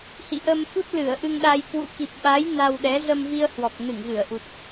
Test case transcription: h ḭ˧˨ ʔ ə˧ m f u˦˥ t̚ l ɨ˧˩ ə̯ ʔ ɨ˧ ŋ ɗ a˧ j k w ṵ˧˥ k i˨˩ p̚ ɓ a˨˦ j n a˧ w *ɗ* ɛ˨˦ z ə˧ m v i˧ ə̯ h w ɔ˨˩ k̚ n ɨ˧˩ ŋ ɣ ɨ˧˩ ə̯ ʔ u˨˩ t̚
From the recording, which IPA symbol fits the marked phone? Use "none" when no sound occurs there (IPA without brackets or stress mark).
ɗ